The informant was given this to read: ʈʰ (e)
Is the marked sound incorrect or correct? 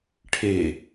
correct